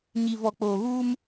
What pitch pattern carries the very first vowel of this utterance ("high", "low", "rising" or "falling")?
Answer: low